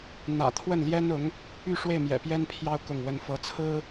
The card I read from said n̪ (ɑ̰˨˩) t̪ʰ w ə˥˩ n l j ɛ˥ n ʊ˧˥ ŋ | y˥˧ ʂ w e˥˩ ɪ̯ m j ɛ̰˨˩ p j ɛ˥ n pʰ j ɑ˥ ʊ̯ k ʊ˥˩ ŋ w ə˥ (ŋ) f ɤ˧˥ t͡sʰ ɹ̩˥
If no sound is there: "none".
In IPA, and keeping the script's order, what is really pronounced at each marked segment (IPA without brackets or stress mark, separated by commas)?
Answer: ä̰˨˩, n